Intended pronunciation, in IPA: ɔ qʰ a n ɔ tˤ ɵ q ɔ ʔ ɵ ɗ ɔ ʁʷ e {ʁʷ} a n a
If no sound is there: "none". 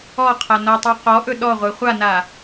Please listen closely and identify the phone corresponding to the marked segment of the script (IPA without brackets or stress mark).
χʷ